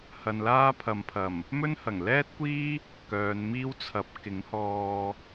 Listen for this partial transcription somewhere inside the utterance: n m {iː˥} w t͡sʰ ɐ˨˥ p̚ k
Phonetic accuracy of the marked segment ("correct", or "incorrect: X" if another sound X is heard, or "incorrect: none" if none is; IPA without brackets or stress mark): correct